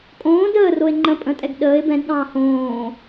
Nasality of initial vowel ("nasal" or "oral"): nasal